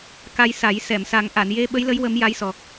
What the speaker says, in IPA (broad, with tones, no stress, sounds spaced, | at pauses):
k a˧ j s a˨˩˦ j s ɛ˨˩˨ m s a˨˩˦ ŋ ʔ a˨˩˨ n j e˧ ɓ ə˧˥ j l ə˧˥ j w ə˧˥ m j a˧˥ j s ɔ˨˩